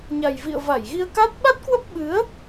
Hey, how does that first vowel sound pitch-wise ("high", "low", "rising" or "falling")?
low